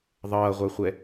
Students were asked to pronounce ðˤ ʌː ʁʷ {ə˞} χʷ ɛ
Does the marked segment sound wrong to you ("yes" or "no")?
no